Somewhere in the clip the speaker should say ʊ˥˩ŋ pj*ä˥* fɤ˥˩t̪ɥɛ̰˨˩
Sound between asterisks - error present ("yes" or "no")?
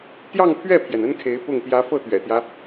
yes